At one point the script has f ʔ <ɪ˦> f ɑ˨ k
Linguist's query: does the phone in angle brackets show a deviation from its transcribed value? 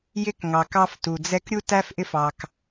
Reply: no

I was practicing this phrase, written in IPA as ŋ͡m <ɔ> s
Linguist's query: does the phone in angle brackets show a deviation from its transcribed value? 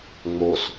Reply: yes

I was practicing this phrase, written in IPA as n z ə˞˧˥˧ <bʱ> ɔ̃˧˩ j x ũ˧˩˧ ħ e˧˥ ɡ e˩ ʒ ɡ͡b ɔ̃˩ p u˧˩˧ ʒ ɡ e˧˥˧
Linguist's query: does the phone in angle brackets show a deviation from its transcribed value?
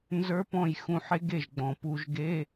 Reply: yes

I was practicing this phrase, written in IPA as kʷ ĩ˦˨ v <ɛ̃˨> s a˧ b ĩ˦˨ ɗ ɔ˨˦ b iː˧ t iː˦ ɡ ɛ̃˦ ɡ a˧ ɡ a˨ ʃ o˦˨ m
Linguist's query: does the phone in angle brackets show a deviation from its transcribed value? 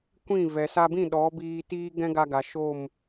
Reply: yes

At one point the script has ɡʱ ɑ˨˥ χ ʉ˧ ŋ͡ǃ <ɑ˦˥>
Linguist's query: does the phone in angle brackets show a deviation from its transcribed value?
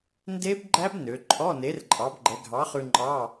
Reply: yes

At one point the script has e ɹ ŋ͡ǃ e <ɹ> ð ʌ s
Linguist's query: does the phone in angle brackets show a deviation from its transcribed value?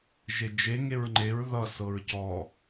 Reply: no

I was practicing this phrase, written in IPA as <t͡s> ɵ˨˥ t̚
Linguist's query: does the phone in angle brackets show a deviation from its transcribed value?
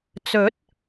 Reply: no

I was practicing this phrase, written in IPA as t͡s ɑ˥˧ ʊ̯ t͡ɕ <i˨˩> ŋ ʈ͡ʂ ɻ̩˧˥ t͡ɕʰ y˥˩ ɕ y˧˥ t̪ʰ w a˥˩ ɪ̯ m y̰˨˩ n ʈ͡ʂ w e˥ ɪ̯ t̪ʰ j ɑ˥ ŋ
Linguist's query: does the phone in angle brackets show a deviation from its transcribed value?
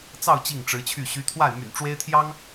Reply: yes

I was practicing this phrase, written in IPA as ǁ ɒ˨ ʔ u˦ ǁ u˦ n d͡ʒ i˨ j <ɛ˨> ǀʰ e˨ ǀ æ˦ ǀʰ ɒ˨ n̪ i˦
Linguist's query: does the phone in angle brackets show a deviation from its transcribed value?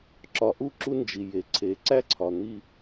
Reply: yes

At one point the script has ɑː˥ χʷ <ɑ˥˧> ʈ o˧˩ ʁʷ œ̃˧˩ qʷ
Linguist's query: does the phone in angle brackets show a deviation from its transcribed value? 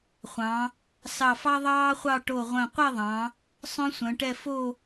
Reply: no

